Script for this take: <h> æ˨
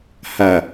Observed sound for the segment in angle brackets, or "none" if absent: h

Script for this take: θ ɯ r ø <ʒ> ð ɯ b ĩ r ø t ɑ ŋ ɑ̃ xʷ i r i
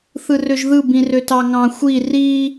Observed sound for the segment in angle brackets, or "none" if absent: ʒ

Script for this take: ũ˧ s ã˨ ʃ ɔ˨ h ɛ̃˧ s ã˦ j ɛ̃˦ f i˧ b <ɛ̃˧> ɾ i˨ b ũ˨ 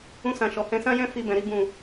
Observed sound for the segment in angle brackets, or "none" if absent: ɛ̃˨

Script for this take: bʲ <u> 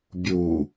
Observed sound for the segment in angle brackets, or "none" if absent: u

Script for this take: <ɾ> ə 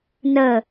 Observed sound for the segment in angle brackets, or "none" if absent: n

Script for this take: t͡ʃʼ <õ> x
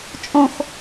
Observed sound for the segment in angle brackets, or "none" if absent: õ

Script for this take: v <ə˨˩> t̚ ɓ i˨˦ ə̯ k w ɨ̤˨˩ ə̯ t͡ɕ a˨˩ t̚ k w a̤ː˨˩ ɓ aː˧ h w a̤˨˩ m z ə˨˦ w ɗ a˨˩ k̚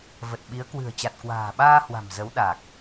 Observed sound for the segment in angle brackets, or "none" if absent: ə˨˩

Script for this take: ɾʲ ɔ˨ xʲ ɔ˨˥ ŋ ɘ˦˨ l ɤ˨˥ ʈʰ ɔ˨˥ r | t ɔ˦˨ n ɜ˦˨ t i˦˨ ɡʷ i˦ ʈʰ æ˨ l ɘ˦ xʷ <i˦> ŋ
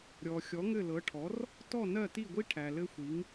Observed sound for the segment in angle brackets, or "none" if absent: i˨˥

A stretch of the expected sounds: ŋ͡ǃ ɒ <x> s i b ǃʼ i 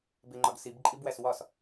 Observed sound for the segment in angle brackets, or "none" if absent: ɡ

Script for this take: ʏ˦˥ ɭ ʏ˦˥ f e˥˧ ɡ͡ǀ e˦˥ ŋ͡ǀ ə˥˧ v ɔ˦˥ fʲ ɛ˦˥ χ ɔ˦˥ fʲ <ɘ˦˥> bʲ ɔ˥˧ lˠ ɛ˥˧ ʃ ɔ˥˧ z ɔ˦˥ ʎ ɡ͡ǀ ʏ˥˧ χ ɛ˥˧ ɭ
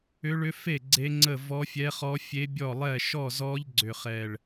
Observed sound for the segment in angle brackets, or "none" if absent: e˦˥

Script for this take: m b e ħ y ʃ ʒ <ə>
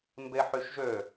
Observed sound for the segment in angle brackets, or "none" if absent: ø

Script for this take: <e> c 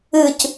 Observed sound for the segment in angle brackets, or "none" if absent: ɨ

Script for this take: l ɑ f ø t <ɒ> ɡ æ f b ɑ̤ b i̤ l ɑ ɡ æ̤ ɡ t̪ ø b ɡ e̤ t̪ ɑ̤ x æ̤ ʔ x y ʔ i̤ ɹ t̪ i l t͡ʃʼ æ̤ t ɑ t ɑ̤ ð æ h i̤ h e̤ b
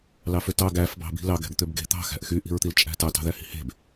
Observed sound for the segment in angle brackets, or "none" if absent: ɑ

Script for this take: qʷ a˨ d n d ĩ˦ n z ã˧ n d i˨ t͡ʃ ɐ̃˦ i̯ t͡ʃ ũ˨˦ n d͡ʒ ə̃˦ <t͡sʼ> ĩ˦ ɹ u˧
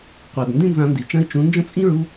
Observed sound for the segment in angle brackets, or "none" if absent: t͡sʼ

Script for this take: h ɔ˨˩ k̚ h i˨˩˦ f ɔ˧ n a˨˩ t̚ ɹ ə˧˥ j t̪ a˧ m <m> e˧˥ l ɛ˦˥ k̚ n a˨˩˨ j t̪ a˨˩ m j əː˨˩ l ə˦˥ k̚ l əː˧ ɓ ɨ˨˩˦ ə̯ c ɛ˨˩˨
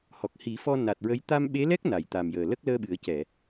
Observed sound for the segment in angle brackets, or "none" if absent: ɓ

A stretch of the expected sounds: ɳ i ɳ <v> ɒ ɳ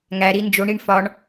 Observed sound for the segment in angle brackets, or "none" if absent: f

